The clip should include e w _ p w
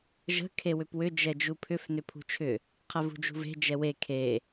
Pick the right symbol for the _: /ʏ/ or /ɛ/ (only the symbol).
ʏ